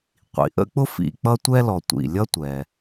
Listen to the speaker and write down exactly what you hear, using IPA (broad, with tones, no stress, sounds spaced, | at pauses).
qʷ ḭ˩ ʔ ə̰˥ k͡p ʊ˥ f ḭ˨ k͡p ʌ˦ tʷ ɛ˥ l ɔ˨ tʷ ḭ˨ lʲ ʌ˦ tʷ ɛ˩